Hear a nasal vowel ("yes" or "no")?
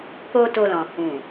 yes